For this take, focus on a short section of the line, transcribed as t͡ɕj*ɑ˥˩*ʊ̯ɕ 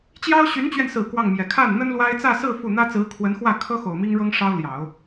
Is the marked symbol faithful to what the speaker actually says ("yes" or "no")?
no